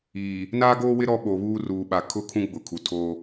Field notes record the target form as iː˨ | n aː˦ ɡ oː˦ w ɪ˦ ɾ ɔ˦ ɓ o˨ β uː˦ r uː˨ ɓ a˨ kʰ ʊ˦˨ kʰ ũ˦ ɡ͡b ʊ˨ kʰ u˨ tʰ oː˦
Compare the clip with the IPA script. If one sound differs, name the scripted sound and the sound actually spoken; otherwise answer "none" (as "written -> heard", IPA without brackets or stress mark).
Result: none